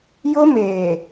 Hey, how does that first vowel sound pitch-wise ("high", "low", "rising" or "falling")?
high